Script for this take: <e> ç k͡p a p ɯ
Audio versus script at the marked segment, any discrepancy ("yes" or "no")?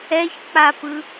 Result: yes